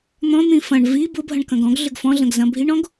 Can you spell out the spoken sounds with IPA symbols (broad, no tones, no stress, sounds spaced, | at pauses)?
n̪ ɔ̃ n̪ ĩ f ɐ̃ ɳ v i b ʊ bʱ ɐ̃ ɳ k ɐ̃ ɡ ɔ̃ ɡ ɮ ʏ ɡ f ɔ̃ ɮ ɐ̃ ɡ z ɐ̃ bʱ i ɳ ɔ̃ ɡ